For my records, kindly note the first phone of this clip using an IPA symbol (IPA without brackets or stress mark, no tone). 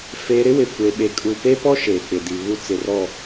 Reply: f